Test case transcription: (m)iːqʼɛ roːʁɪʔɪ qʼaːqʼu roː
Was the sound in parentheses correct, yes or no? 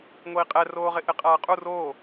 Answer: no